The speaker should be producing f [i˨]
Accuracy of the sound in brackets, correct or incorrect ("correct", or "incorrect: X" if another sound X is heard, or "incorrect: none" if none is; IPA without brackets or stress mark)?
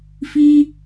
incorrect: i˦